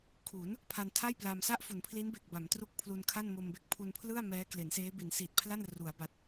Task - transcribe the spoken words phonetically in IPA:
kʰ u˩˦ n | pʰ a˧ n tʰ a˥˩ j p l a˧ m s a˥˩ ʔ f u˩˦ n pʰ l i˦˥ n b e˨˩ k̚ b a˩˦ m t r u˦˥ k̚ pʰ l u˧ n kʰ a˥˩ n m o˧ m b e˦˥ k̚ pʰ u˧ n pʰ l ɯ˥˩ a̯ m ɛː˦˥ k l e˩˦ n s eː˦˥ b i˩˦ n s i˨˩ t̚ pʰ l a˥˩ n r u˩˦ a̯ b a˨˩ t̚

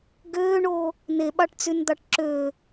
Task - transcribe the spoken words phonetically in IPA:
ɡ øː ɳ oː | n e ɓ ɑ ʈ t͡s y n d̪ ɑ ʈ ǁ øː

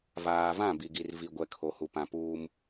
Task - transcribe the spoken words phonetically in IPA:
v aː˨ v ã˦˨ b i˨ ɡ i˨ r v i˨ ɡʷ ɛ˨ kʰ o˨ h u˨ p ã˨ p uː˦ m

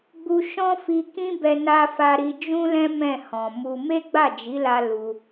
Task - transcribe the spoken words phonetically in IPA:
ɡ͡b u˧ ʃ ɔ̃˦ f i˧ k ĩ˦ b ɛ˧ n a˧ f a˧ ɾ i˧ d͡ʒ ũ˦ l ɛ̃˦ m ɛ̃˦˨ h ɔ̃˨ m u˧ m e˦ ɡ͡b a˦˨ d͡ʒ i˨˦ l a˧ l u˧

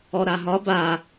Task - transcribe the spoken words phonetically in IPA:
ɔ ɾ a ɦ ɒ b a

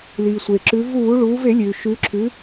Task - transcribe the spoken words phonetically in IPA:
l iː˩ sʷ e˩ ǁ ʉ˩˧ v uː˧˩˧ ɭ uː˩˧ v e˧˩˧ lʲ ʉː˩ ʃ ʉ˩˧ ǁʰ ʉ˩˧

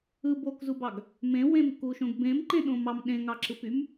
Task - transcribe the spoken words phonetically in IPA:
ɯ b o k z u b ɑ ɡ | m ẽ w ẽ m k u ʃ õ ɡ b ẽ m ǃ ẽ ɗ õ m ɑ m ɗ ẽ ŋ ɑ ǁ ɯ p y m

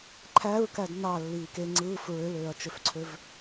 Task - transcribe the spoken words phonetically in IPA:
ǃʰ æ ɹ k æ d n ɑ lː iː k e ŋ͡ǀ ɯː f ɹ ø l øː ɐ̯ t͡ʃ ø f ǀʰ ø v

